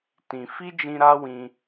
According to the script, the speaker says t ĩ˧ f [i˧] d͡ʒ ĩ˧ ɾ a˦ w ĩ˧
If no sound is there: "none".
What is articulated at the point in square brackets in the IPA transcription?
i˦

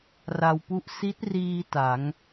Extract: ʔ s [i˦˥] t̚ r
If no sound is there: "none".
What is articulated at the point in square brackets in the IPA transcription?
i˦˥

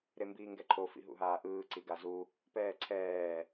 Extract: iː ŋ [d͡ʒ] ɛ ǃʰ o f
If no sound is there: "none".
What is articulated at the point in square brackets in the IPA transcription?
ɡ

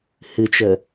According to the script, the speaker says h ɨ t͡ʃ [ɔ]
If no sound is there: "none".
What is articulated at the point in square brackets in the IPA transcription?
ə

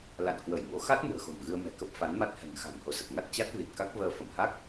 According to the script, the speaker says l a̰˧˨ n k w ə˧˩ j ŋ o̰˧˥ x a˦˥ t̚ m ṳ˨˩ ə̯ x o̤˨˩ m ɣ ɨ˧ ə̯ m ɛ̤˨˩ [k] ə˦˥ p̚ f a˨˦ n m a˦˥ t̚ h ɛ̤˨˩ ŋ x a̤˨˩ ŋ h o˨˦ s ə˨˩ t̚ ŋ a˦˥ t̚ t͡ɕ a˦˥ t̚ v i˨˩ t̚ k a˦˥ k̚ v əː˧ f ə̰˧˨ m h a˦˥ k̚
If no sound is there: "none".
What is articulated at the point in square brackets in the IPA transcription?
k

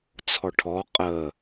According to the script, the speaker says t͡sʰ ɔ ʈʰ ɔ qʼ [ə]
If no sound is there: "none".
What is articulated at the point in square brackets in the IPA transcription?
ə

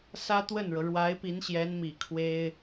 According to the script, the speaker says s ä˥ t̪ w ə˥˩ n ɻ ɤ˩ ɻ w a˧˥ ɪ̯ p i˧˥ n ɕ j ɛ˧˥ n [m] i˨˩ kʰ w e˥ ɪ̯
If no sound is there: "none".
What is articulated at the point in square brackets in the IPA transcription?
m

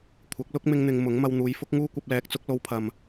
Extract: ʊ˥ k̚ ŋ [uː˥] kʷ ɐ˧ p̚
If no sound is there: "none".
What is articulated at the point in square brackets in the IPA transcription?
uː˥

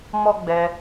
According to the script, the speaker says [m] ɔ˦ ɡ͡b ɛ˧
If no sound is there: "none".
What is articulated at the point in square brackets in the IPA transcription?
m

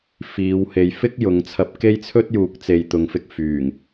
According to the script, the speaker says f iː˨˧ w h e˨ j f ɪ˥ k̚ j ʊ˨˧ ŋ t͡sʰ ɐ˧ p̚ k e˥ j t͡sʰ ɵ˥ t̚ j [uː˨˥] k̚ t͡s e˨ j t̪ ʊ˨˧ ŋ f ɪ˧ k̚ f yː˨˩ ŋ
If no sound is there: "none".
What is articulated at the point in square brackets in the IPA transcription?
uː˨˥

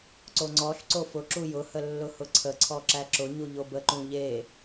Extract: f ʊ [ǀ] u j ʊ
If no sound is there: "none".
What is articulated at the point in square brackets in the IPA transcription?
ǁ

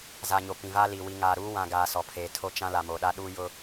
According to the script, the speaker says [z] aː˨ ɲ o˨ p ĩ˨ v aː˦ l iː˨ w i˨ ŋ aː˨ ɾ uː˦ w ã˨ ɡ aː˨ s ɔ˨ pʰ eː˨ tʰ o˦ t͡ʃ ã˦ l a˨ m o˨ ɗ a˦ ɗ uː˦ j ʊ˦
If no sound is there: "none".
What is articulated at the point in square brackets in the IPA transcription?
z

